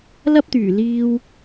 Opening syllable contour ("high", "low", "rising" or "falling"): high